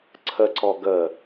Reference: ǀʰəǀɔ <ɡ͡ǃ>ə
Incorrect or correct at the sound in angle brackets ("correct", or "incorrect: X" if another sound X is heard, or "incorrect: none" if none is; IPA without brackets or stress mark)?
incorrect: ɡ